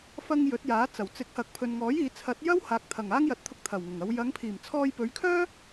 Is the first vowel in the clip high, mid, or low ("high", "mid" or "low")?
low